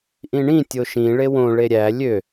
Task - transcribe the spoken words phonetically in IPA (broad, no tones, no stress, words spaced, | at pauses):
ʔĩɳĩ tʲoʃĩ ɭewõ ɭeɾʲæ lʲø